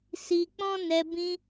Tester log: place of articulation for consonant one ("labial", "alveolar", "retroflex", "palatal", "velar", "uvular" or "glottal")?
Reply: alveolar